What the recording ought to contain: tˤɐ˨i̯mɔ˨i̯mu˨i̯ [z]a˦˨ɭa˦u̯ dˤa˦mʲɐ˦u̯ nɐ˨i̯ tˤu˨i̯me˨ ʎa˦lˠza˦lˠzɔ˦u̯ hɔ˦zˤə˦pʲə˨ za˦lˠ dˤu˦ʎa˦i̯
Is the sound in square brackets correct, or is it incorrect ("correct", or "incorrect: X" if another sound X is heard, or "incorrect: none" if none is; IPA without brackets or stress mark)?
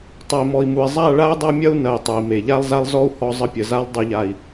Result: incorrect: zˤ